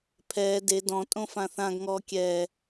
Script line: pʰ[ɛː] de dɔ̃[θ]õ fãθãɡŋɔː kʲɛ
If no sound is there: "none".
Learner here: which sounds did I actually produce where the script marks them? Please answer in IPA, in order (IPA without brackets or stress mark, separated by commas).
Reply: ɛː, tʼ